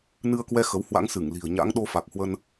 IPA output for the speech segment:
n ɨ˧ ə̯ k w ɛ˧ x ə˨˦ w h w a̰˧˥ ŋ s ɨ˧˩ ŋ l i̤˨˩ ə̯ ɲ a̰˧˥ ŋ ɗ o˧ f a˨˩ k̚ h w ə˧ n

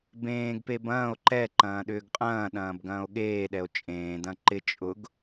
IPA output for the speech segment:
b ẽː ɡ p e b ɐ̃ː o̯ ǃ ɛ ǃ ɐ̃ː ɗ ʏː ɡ qʼ ɐ̃ː ɗ ɐ̃ː b ɡ ɐ̃ː o̯ ɠ eː ɗ ɛ o̯ t͡ʃʼ ẽː d ɐ̃ ǃ ɪ t͡ʃʼ ʊ ɡ

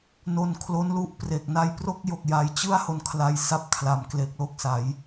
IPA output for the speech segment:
n o˧ n kʰ l o˦˥ n l u˥˩ ʔ p r e˨˩ k̚ n a˦˥ j p r o˦˥ k̚ j o˨˩ k̚ j a˧ j t͡ɕ ɯ˥˩ a̯ h o˧ n kʰ l a˧ j s a˦˥ p̚ kʰ l a˩˦ m k l e˨˩ k̚ l o˥˩ k̚ s a˩˦ j

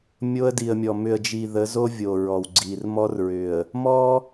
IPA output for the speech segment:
mʲ o˦ ə̯ d i˨ ə̯ mʲ ɔ˨ m ʏ˨ ə̯ d͡ʒ i˨ ð ə˨˦ z o˦ vʲ o˨ ɹ ɔ˨ w ɡ͡ǀ i˨ r m ɔ˦ r ɹ ʏ˨ ə̯ | m ɔ˦

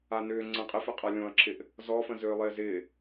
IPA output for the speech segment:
a n ʏː ŋ͡ǀ ə̃ qʼ ɪ f ɪ qʼ a lʲ õ ɐ̯ ǁ ɪ ʔ | z ɔ f ə̃ z ʏː lˠ ɪː z ɪː

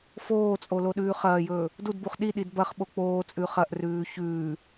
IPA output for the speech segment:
f oː t͡sʼ o l o ɗ ʉː χ ɐː j ɵː | d u d b u χ ɗ i ɗ i d b ɐ χ ɓ o k͡p oː t͡sʼ ʉ χ ɐ ʔ r ʉː ç ʉː

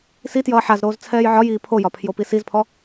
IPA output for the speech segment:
s i t j ʌː ħ a z ɾ oː z t͡sʰ ɛː j ʕ ɒ j iː pʰ o j ɒ pʰ j o p i s i z pʰ ɔ

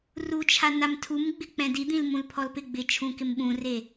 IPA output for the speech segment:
r u t͡ʃʰ a n a m tʰ u m ɡ͡b ɪ k͡p ɛ̃ d i d̪ ĩ l m ũ l pʰ ɔ l p ɪ ɡ͡b ɪ t͡ʃʰ ũ k ɪ m ɓ ũ r e

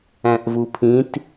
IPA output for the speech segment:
æ̃ ʔ v u pʰ ĩ t

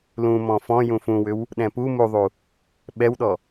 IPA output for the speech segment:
l ũ m ɔ̃ f ɔ̃ j ũ f ũ w ʏ w | ɗ ɛ̃ p u m u ðˤ u | ɓ ɛ w ɗ ɔ

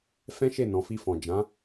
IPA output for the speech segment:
f ɛ̃˦ ʃ e˦˨ n ɔ̃˨ f i˧ f ɔ̃˨ d͡ʒ ã˨˦

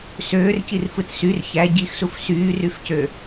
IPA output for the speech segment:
s øː r c i r f ɯ t s y r ç æ ɟ i x s u f s yː r y f c ø

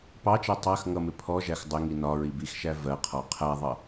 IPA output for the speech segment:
p ɑ t͡ʃ ɜ tˤ ɜ x ŋ ʌ m ɪ pʰ ɔ ʒ æ x dˤ ɪ ŋ i n ɒ ɹ i b i x ʃ æ v ɜ qʰ ɔ qʰ æ ðˤ ʌ

